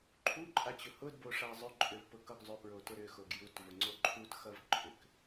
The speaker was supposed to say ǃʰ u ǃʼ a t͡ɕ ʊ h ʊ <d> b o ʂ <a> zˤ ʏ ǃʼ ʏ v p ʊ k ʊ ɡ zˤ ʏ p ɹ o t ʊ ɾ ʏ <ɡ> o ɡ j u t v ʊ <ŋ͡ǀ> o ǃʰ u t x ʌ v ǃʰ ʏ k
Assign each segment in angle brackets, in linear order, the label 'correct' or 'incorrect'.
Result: correct, correct, incorrect, correct

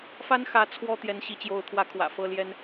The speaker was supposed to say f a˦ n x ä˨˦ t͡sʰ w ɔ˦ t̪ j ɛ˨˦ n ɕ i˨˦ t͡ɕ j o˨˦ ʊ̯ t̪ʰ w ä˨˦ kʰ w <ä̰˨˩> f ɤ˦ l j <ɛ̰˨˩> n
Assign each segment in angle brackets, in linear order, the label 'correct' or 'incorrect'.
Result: correct, incorrect

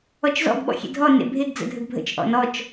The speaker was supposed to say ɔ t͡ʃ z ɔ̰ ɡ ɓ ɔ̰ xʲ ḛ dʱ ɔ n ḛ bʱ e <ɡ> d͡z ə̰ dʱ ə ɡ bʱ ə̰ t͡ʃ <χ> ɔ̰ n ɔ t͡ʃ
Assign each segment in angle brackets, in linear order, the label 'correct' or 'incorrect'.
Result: correct, incorrect

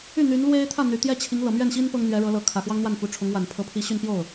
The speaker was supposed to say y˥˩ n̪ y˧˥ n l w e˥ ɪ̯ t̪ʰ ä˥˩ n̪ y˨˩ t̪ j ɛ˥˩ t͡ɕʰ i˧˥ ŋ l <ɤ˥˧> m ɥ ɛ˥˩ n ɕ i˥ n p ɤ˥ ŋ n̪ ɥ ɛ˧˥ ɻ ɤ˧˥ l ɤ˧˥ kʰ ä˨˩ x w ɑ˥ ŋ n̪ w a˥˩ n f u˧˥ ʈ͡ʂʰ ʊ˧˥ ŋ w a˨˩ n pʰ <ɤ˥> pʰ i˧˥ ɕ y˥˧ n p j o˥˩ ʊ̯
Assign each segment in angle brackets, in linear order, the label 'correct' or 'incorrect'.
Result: incorrect, incorrect

